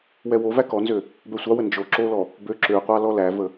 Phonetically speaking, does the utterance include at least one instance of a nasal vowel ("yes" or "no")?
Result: no